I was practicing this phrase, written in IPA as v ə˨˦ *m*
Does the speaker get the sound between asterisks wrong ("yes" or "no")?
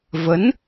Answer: yes